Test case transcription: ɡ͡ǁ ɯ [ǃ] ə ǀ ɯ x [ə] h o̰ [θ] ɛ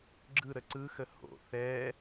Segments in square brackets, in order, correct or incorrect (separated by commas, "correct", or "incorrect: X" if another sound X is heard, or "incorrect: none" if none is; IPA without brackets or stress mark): incorrect: ɾ, correct, correct